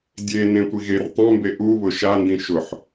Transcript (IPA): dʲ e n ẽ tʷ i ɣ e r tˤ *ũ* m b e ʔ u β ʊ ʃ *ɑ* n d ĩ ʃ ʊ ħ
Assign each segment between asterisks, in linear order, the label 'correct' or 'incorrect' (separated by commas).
incorrect, incorrect